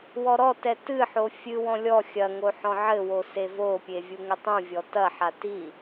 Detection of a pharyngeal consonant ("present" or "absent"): present